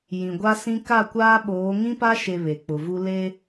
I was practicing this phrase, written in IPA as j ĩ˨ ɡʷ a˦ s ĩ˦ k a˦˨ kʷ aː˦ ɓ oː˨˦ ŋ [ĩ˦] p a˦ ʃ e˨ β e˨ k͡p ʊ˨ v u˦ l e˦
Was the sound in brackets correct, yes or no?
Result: yes